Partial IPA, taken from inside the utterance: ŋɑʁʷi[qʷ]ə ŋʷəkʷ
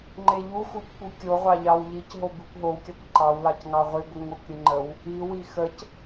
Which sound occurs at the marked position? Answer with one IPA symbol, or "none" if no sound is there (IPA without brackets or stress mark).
ɡʷ